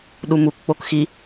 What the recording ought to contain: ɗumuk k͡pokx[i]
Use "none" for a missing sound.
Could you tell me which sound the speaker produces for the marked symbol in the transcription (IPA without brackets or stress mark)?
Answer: i